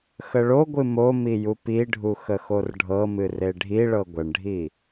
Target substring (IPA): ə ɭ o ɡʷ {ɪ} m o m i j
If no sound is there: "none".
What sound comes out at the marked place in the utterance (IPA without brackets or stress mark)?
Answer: ɨ